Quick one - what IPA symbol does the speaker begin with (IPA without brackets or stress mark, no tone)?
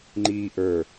ŋ͡ǃ